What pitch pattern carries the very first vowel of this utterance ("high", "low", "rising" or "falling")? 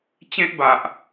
high